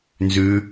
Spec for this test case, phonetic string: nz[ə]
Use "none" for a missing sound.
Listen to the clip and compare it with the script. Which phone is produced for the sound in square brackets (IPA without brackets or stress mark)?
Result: ʉ